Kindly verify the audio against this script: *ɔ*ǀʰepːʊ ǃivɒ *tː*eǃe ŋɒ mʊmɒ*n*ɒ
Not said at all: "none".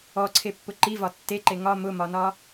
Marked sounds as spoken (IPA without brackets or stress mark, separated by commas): ɔ, tː, n